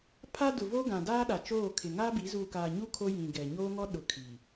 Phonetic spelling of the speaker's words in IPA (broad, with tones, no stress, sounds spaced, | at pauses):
pʰ a˦ d ʊ˨ v o˦ ɡ ã˨ d aː˦ ɗ a˨ t͡ʃ oː˦˨ kʰ ɪ˨ ŋ aː˦ b i˨˦ z uː˨ k aː˨ ɲ u˦ kʰ o˦ j ĩ˨ ɡ ɛ˨ ɲ oː˦ ŋ ɔ˦ ɗ ʊ˨ kʰ i˨